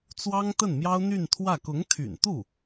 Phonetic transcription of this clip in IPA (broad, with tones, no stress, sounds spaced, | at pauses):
t͡s w ɑ˥ ŋ t̪ ə˥˩ n m j ɑ˥ ʊ̯ n̪ y˥˧ n t̪ʰ w ä˥˩ k ʊ˧˥ ŋ t̪ʰ y̰˨˩ n t̪ u˥˩